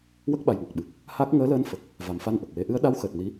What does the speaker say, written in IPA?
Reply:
w ə˦˥ k̚ ɓ a˨˩ j ŋ ɔ˨˩ k̚ ɓ ɨ˨˩ k̚ | h a˦˥ k̚ ŋ əː˧˥ l əː˧˥ n f ə˨˩ k̚ | v a˨˩ m f a˧ n ʔ ə˨˩ k̚ w e˧˥ ʔ ɨ˧˥ ə̯ ɗ a˧˥ w x əː˨˩ t̚ n i˧˥

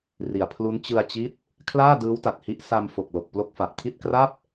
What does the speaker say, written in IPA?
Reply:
r i˨˩ a̯ pʰ l u˦˥ n t͡ɕ ɯ˧ a̯ t͡ɕ i˦˥ t̚ | kʰ l aː˥˩ d ɯː˦˥ w t a˨˩ t̚ h i˦˥ ʔ s a˧ m f o˨˩ k̚ l o˨˩ k̚ p l o˦˥ k̚ f a˨˩ ʔ kʰ i˥˩ t̚ k r a˥˩ p̚

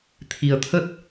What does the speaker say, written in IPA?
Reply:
t̪ʰ i˧ ə̯ t̪ʰ ə˦˥ t̚

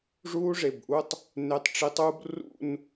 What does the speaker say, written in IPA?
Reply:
ʐ uː˦ ʐ e˩˧˩ b ʔ u˦ tˤ | n e˨˦ tˤ ʈ͡ʂ i˨˦ tˤ uː˦ b r ṵ˦˨ n

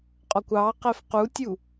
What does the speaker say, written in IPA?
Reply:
qʼ ɔ kʷ ɑ q ɛ f q u tʲ u

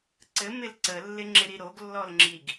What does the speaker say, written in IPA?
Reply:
ǀ ɘ m ɪ l ǀ ə lː ɪ ŋ͡ǁ ɪ ɾ i ɾ o ɡ lː ɔ l ŋ͡ǁ i ɡ

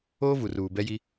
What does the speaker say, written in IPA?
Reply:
oː˦ v u˨ r uː˨ b ɛ˦ j i˦

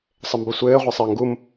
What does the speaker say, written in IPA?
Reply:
sˤ ɘ m b ə sʷ ɘː ʁʷ ɛ sˤ ɘː ŋ ɡ u m

